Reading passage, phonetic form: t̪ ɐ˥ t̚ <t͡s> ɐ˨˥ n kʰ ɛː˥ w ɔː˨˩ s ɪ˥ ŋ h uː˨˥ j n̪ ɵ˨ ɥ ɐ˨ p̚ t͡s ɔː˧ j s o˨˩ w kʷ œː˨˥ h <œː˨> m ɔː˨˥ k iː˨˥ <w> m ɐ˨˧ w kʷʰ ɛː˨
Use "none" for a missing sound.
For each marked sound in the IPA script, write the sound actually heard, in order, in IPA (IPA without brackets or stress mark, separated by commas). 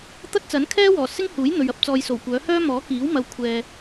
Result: t͡s, œː˥, w